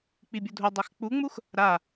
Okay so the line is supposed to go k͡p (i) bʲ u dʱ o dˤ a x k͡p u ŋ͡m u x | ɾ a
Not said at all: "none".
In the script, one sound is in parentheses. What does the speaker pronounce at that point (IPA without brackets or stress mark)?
i